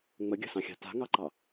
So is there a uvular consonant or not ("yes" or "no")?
no